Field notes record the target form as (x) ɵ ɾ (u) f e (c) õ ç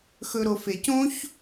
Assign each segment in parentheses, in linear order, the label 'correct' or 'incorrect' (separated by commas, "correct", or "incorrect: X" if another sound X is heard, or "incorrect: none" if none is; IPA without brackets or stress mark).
correct, incorrect: o, correct